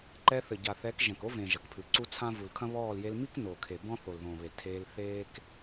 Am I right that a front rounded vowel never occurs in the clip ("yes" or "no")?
yes